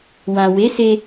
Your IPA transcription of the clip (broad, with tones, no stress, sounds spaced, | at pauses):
w ã˨ w e˨˦ s e˧